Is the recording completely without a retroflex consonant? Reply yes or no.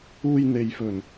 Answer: yes